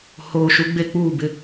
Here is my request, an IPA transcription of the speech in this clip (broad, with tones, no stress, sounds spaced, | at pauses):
h oː˨ ʃ u˨˦ ɡ͡b e˦ k͡p uː˦˨ b ɪ˦